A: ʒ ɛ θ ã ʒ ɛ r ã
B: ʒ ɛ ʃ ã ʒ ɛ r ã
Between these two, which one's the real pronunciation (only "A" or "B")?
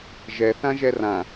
A